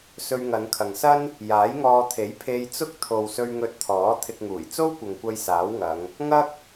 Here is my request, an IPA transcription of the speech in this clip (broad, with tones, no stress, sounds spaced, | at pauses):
s ɵ˧ ɥ ŋ ɐ˨˧ n kʰ ɐ˨ ŋ s ɐ˥ n | j aː˨˥ j ŋ ɔː˧ t̪ʰ e˨˥ j pʰ e˧ j t͡s ʊ˥ k̚ t̪ʰ o˨ w s ɵ˧ ɥ ŋ ɵ˧ t̚ t̪ʰ ɔː˨˥ t̪ʰ ɪ˧ k̚ ŋ uː˨˩ j t͡s o˥ w kʷ ɐ˨ ŋ kʷ ɐ˧ j s aː˨˥ w ŋ ɐ˨˧ ŋ | ŋ ɐ˥ k̚